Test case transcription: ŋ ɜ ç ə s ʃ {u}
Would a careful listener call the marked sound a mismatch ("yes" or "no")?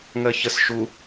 no